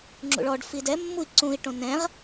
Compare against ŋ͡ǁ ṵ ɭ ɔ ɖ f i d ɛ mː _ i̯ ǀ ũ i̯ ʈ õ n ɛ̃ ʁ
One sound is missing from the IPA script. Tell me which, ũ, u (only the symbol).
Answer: u